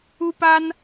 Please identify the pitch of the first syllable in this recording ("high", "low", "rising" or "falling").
high